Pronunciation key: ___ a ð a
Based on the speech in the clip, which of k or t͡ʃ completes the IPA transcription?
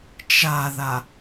t͡ʃ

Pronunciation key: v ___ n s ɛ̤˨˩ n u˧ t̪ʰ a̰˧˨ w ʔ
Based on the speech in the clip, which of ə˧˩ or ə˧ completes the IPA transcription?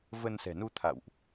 ə˧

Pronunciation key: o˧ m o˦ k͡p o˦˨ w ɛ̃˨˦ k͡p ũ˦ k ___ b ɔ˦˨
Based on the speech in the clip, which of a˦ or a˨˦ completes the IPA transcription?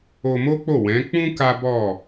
a˦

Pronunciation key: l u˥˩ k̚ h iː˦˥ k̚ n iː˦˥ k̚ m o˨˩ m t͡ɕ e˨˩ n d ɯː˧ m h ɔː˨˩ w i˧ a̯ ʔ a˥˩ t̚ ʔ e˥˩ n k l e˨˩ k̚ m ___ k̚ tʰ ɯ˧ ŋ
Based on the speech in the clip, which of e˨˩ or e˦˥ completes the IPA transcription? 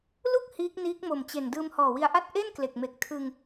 e˨˩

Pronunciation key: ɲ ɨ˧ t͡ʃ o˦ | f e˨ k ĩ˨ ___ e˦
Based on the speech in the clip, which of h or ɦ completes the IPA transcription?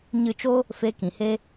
h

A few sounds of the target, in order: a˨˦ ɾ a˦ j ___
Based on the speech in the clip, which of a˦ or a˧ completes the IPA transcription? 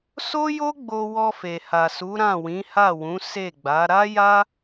a˦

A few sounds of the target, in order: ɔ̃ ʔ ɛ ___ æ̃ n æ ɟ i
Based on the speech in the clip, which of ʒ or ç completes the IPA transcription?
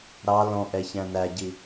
ç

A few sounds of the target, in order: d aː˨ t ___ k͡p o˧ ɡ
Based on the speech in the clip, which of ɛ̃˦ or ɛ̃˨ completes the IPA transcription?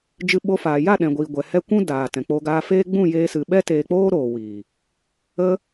ɛ̃˨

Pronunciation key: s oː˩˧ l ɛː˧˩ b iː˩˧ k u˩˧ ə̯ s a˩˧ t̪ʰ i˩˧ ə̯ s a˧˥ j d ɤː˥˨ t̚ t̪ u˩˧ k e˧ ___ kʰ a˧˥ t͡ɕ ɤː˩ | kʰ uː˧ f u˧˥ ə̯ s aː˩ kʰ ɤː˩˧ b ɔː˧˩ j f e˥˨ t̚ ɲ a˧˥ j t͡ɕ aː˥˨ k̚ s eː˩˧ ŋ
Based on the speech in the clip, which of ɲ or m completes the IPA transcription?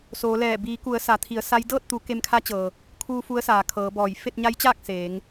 m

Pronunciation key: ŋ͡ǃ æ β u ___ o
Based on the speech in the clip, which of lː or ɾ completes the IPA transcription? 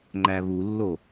lː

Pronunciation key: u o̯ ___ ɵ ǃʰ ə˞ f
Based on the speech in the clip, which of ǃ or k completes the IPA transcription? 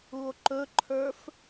ǃ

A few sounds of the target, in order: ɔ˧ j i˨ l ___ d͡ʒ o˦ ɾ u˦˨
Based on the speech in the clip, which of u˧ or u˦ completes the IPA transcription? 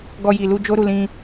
u˧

